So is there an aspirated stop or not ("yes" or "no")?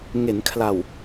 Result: yes